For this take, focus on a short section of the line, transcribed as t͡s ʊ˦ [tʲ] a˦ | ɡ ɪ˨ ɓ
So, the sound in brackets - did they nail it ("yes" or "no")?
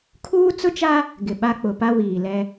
no